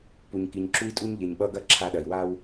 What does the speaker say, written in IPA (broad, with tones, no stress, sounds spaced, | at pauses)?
p u˨ ɲ k i˨ ɲ ǁ u˦ i̯ tʼ u˦ ɲ ʎ e˨ ɲ ɓ ʌ˦ ɡ ɐ˦ ǁʰ a˦ ɗ ɐ˨ i̯ w a˦ w